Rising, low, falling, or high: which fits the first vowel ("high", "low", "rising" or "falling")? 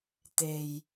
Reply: low